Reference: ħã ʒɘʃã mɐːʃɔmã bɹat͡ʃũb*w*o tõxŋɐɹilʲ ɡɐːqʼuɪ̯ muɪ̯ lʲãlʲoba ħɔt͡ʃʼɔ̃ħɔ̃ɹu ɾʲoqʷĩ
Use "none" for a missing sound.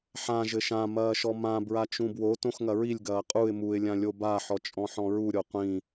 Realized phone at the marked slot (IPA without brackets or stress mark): w